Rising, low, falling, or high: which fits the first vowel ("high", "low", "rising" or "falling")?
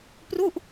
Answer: falling